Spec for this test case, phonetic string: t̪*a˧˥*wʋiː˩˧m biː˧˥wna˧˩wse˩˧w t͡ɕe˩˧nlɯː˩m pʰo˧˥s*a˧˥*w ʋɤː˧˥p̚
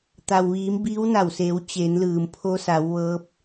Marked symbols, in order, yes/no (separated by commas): no, no